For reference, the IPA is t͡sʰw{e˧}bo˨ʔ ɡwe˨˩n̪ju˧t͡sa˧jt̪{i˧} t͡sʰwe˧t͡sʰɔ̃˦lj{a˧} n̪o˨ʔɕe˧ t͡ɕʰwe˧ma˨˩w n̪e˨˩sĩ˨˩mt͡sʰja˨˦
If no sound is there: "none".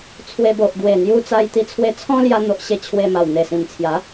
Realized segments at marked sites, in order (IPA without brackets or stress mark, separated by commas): e˧, i˧, a˧